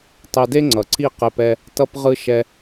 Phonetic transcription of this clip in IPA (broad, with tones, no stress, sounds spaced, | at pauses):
tˤ e˧ d e˦ ŋ͡ǀ ʌ˨ ǀ i˦˨ q e˧ p ɛ˧ | t ʌ˧ p ʁ ɯ˧ ʃ ɛ˧